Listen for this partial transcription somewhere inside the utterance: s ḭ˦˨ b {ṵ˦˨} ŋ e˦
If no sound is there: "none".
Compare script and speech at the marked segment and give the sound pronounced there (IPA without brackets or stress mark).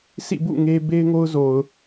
ṵ˦˨